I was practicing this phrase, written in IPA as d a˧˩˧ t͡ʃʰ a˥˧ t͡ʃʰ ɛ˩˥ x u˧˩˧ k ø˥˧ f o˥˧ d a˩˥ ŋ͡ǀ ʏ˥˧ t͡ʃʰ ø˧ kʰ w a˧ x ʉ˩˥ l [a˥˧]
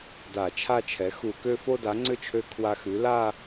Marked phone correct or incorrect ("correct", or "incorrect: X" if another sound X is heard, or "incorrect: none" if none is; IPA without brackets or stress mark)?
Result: correct